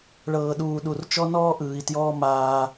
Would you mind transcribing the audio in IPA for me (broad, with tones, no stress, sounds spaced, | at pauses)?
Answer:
ɭ ɤː˨ ɗ uː˨ ɗ u˨ r t͡ʃ ɔ˦ n ɔː˦ ʔ ɯː˨ i̯ t j ɔː˦ m aː˦